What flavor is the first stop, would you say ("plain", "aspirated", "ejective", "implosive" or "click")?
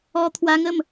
aspirated